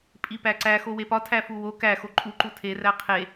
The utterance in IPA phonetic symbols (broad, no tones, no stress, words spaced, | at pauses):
pʼipæǀæ xowepɒtʰæ fuwo kæxo ǃʼuǃu tʰeræ qʰe